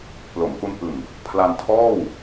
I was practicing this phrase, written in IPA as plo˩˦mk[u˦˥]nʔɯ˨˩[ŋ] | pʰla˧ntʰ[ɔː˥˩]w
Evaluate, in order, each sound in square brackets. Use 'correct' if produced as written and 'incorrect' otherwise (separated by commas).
correct, correct, correct